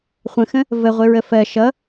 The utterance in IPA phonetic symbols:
χʷ ə̃ x ə̃ | v ə ʁʷ ɪ ɹ ə f ɜ ʃ ʌ

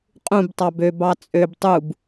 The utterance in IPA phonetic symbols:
qʼ ũ b tˤ ɑ b ø b ɑ t͡sʼ ø b tˤ u b

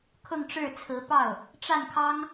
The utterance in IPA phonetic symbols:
kʰ ʊ˥˧ ŋ ʈ͡ʂ ɻ̩˥˩ t͡sʰ ɹ̩˧˥ p ɑ˥˩ ʊ̯ | ʈ͡ʂ a˥˩ n kʰ ɑ˥ ŋ

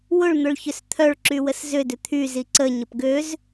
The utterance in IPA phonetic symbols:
w ʊ ɭ n̪ ʊ ɭ ç ʏ s t̪ʰ œ ɭ ǁ y w ə s z ʏ d ʏ t̪ʰ y z i ǀ ə ɲ ə p ɡ ø z

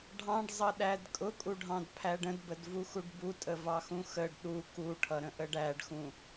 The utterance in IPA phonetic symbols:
ɖʱ ɑ̃ ɖ zˤ ʌ ɗ æ d kʼ ʊ kʼ u ɖʱ ɑ̃ d pʰ æ ɖ ə̃ d b ə d v u x u ɖ b u tʼ ə v ɑ x ũ x ə ɖ ɗ u k u ʈʰ ʌ ɾ ə̃ ʔ ə ɖ æ ɖ x ũ

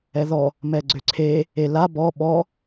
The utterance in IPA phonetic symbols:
ɛ ð ɔ | m ɛ ɡ͡ǀ ø ǀʰ e | e l a b ɔ ɓ ɔ

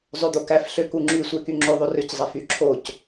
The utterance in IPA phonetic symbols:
zˤ ø d̪ o k æ f ɬ ø k u ŋ͡ǁ y sʷ e k y ŋ͡ǁ ø ðˤ o r ø c zˤ æ f y ǁʰ o c

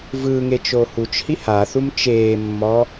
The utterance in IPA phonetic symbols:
v ɯ ŋ e t͡ʃ oː h u t͡ʃ h i h a θ u m t͡ʃ eː mː ɔ

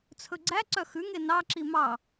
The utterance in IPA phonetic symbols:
t͡sʰ ɵ ɡ͡ǀ æ ǀ œ x ʉ ŋ e n ɑ ǁ i m ɑ

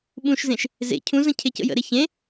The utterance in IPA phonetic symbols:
ɓ ũ ʃ z ẽ ʃ | z ḛ cʰ ũ z ə̃ cʰ e c ə̰ j ə̰ ɾ e ç ẽ

